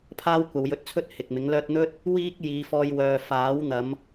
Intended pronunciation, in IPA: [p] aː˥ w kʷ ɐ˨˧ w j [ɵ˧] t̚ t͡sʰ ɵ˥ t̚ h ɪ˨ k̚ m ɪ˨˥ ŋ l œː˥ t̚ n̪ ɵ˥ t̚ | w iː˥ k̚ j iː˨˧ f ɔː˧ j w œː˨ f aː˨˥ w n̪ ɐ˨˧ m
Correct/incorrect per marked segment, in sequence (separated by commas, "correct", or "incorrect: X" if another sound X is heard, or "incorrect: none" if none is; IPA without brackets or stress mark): incorrect: pʰ, correct